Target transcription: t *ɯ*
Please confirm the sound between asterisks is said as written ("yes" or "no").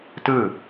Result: yes